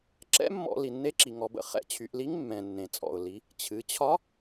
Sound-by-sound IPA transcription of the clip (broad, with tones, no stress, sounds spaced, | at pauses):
ǁ ɛ̰˧˥ mː ɔ̰˧˩˧ l i˩ nː e˧˥ ǁ i˩ ŋ ɔ˩˧ b ə̰˩ χ ɛ̰˧˥ t͡ɕʰ y˩˧ ʔ l i˧˥ ŋ mː ɛ̃˩ nː ẽ˩ t͡sʼ ɔ̰˩ ʊ̯ l i˩˧ | t͡ɕʰ ɨ˩˧ t͡ɕʰ ɒ˧˥